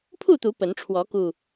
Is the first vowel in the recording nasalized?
no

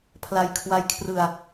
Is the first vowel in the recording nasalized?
no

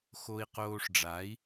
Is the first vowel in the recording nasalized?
no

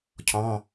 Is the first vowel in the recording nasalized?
yes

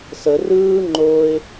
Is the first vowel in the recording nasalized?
no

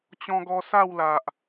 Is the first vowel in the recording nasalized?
yes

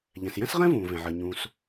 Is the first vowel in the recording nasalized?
yes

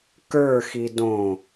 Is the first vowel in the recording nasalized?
no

